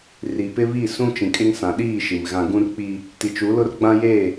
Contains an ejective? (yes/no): yes